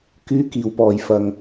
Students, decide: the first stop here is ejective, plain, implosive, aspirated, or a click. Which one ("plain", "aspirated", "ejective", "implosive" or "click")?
plain